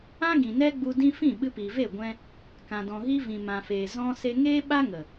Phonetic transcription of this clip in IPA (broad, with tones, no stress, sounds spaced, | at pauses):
ã˦ ɡ ĩ˨ n ɛ˦ ɡ͡b u˧ d ĩ˧ f ĩ˦˨ ɓ ɨ˧ p iː˨ v e˦˨ ɡʷ ɛ̃˧ | k ã˨ d ɔ̃˨ ɣ i˧ v ĩ˨ m ã˨ f eː˨ z ɔ̃˧ s e˧ ŋ eː˦ ɓ a˦ ŋ ə˨